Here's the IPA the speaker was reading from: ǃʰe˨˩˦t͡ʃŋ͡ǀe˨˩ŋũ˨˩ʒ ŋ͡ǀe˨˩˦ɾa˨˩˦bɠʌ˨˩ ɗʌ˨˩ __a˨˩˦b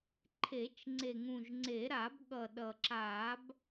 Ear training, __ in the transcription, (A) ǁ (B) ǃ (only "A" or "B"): A